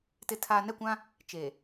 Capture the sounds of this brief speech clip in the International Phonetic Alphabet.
t ɪ˨ tʰ aː˨ n ɛ˦˨ kʷ ã˦ | t͡ʃ e˨

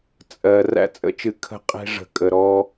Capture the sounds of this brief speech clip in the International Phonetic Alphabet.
t͡sʼ ɜ˨ r æ̰˦ t͡sʼ ə̰˦ t͡ʃ ɨ˨ kʰ ə̤˦ qʼ e̤˦ ʐ ə̤˨ kʼ ə˨ ɾ ɔ˦

